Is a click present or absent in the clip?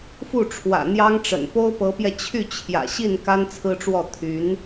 absent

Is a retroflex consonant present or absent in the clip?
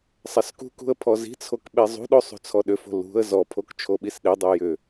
absent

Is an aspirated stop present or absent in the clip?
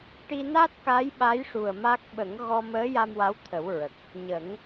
present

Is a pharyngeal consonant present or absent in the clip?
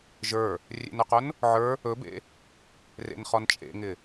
present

